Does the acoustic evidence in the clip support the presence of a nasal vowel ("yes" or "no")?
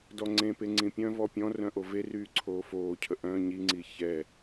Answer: yes